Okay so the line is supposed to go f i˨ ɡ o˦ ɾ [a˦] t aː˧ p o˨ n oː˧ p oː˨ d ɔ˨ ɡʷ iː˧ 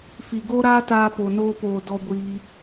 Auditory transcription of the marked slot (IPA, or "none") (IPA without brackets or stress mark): aː˦